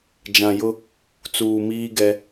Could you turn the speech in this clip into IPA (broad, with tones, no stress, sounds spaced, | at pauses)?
d͡ʒ ã˨ j ʊ˦ | t͡s uː˨ m iː˦ ɡ ɛ˦